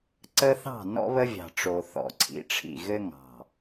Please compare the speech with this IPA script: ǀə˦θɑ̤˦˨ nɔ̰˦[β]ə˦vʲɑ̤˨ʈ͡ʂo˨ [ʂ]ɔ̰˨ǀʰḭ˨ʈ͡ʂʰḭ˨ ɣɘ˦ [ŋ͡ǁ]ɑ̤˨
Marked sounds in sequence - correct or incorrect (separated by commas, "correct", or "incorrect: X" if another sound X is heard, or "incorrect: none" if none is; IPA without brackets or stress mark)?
correct, incorrect: θ, incorrect: ŋ